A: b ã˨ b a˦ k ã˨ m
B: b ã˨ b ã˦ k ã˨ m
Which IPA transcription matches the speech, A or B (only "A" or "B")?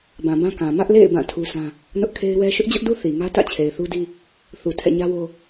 B